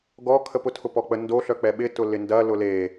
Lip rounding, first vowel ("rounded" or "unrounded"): rounded